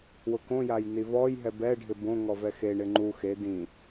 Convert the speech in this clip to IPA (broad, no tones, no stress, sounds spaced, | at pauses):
w ʊ k õ j a j n i v ɔ j ɦ ɛ b ɛ ɖʱ ɪ b õ ŋ ɔ v ɛ x e ɳ ɪ ŋ͡ǃ u x e d ĩ